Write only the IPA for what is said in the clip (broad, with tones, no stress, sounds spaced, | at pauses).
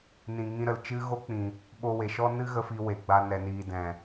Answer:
n ĩ˨ ŋ ĩ˧ ɾ ə˨ l t͡ʃ ɨ˦ ɣ o˦ k͡p ĩ˨ | ɓ o˧ w e˨ ʃ ɔ˦ n ɨ˦ ɣ ə˧ f i˧ w e˨ ɡ͡b a˧ n ɛ˨ n iː˨ d ɛ̃˨